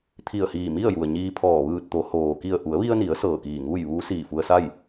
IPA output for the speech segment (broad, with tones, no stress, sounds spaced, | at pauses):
t̪ʰ i˧˩ ə̯ h iː˧˩ m i˥˨ ə̯ j u˩ ə̯ ɲ iː˧ pʰ ɔː˧˩ ʋ ɯː˧˩ t̚ t̪ o˩˧ h oː˩ k i˧˩ ə̯ ʔ u˩˧ ə̯ ʋ i˧ ə̯ n i˩˧ ə̯ s ɤː˧˩ k iː˧˩ ŋ uː˥˨ j ʋ uː˧˥ s iː˧˩ f u˧ ə̯ s a˥˨ j